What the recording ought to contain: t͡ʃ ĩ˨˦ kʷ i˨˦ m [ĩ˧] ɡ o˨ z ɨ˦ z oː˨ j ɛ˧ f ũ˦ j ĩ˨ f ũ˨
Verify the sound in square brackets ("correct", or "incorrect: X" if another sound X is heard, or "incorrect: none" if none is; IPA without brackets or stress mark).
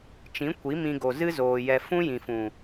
correct